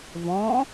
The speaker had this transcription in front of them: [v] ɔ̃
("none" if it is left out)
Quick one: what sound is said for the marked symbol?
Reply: v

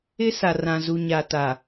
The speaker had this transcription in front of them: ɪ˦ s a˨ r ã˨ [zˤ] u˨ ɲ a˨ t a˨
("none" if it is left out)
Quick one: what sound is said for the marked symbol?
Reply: z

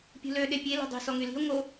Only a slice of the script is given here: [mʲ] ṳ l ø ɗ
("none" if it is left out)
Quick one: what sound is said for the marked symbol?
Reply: pʲ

